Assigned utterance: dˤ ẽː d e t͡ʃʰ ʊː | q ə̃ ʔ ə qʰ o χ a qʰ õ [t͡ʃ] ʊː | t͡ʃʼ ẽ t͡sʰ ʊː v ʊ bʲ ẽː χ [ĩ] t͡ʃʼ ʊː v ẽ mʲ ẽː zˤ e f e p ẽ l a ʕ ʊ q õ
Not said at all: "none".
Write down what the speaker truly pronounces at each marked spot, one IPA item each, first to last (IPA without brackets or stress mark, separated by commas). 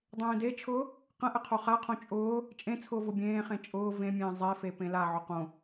t͡ʃʼ, ẽ